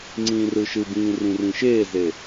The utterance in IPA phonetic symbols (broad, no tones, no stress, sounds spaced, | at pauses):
ŋ͡ǀ ĩː r ɯ ʃ ɯ b ĩː r ĩ r ĩ ʃ eː z e